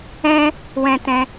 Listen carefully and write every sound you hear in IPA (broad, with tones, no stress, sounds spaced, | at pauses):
ɛ̃˧ | w ɛ̃˧ t ɛ̃˧